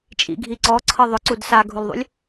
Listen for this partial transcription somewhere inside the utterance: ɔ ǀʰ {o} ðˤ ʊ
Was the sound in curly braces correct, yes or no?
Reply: no